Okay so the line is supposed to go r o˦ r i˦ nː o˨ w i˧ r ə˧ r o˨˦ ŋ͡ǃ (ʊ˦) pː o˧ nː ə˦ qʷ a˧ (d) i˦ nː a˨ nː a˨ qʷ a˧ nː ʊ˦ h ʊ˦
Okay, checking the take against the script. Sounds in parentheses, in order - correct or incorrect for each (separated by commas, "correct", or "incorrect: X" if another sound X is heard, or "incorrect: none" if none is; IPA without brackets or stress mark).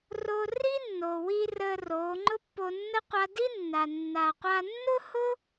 correct, correct